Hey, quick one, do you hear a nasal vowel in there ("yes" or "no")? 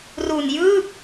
no